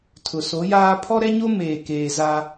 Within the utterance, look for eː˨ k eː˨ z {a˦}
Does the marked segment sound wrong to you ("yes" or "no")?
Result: no